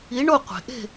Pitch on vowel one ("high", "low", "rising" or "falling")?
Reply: rising